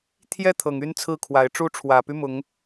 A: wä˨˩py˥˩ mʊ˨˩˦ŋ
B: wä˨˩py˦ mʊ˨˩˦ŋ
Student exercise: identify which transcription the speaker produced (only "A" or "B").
B